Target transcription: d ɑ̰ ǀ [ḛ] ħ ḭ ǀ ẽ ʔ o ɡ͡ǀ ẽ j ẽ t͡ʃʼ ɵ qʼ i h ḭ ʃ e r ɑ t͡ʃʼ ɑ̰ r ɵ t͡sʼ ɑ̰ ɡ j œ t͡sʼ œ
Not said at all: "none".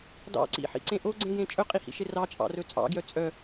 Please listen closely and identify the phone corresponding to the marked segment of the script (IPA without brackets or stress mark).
ḭ